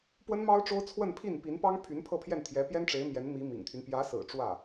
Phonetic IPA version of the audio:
p w ə˥ n m ɑ˥ ʊ̯ ʈ͡ʂ o˥ ʊ̯ t͡sʰ w ə˥˧ n pʰ i˥˩ n p i˧˥ n p ɑ˥ ŋ pʰ y˧˥ n pʰ ɤ˥˧ pʰ j ɛ˥˩ n t̪ʰ j ɛ˧˥ p j ɛ˥ n ʈ͡ʂ e˧˥ ɪ̯ m j ɛ˧˥ n m i˧˥ m ḭ˨˩ ŋ t̪ʰ y˦ n p j ä˧˥ s ɹ̩˨˩ ʈ͡ʂ w ä˥˩

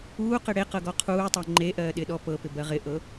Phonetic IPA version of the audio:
uː q ɪ ɽ e q ɤ ɡ ɔ qʰ uː tˤ ɤ ŋ͡ǃ e ʔ ɜː ɗ ɪ ɗ ɔ p ɤ p ɪ b ɜ ʁ ɪ ʔ ɤ

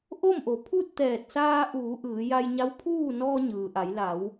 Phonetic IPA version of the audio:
ʔ o˥˨ m ʔ o˩˧ pʰ u˥˨ t̚ t̪ ɛː˧˩ t̚ s aː˧ ʔ uː˩˧ ʔ ɯː˩˧ j a˧ j ɲ a˧˥ w pʰ uː˥˨ n ɔː˧ ɲ ɯː˩ ʔ a˩˧ j l a˩˧ w

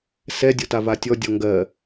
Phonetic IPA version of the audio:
s ɛ dʲ o t a v a tʲ ɔ dʲ ɔ ŋ ɡ ɜ

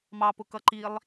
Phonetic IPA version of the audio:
m ɑ p ʊ k ʌ ǃ i lˠ

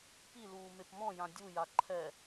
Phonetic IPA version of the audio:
p i l uː m e p m ɔ̃ j ã dʲ u j a ǃʰ ɛ

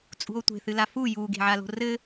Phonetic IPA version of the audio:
t͡sʼ ṳ o̯ tʷ e̤ θ ɨ l a f u j u ɡ e̤ ʕ a l o̤ r ɘ

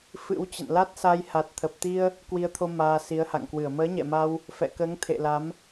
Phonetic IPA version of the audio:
f ɨ̰˧˥ w t͡ɕ ə̰˧˨ n l a˦˥ t̚ s a˧ j h a˨˩ t̚ t̪ʰ ə˨˩ p̚ t̪ i˧ ə̯ | k w i˧ ə̯ t̪ʰ o˧ m aː˧ s i˨˦ ə̯ h a̰˧˨ ŋ k w ɨ˧˩ ə̯ m əː˨˦ ɲ ɛ̰˧˨ m a˧ w | f ɛ̰˧˨ k əː˨˦ ŋ t̪ʰ ḛ˧˨ l a˨˦ m

